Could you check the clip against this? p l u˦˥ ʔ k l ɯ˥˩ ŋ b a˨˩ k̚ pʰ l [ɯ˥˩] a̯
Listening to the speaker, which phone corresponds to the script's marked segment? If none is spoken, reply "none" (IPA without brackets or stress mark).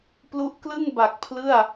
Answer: ɯ˥˩